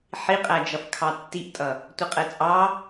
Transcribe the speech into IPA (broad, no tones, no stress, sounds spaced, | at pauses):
ħ i qʼ æ d͡ʒ ʌ f kʰ ɑ tː i ʔ tʼ ʌ | tʷ ə qʼ ɛ t͡sʼ ɑ